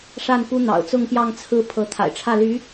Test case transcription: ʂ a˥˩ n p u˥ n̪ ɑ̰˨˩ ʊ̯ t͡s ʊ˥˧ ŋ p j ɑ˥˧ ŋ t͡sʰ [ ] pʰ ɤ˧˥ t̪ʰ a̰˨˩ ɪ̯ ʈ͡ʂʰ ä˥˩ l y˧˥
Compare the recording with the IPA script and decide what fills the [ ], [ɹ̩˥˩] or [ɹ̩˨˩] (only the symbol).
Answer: ɹ̩˥˩